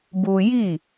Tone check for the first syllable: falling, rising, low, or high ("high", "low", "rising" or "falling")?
high